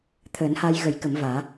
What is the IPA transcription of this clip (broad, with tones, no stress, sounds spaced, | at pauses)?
t̪ʰ əː˨˩˦ n h a˧ j ɣ ə˨˩˦ j k ə˨˩˦ m v aː˨˩˦